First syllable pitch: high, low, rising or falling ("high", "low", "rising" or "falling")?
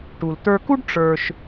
low